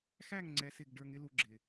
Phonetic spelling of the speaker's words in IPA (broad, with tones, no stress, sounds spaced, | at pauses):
x æ˦˨ ŋ ŋ͡ǀ ɛ˧ s ɪ˦˨ ɡ ɖ ə˞˧ ŋ ɪ˦ l u˧ ɡ͡ǁ ɪ˨